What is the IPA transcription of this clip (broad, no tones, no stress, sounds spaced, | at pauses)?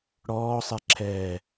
ɽ ɔː sˤ ɛ ǁʰ ɛː